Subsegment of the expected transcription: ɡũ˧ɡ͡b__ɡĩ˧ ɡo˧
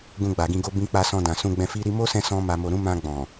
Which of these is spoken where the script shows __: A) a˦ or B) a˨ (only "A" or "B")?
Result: B